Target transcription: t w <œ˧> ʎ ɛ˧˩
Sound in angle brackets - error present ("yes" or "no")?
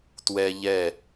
yes